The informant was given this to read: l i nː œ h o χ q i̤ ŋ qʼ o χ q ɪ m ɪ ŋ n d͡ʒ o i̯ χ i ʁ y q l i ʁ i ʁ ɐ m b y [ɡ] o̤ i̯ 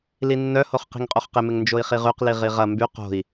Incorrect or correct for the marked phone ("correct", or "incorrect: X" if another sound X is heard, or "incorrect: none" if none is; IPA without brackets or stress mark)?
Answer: incorrect: q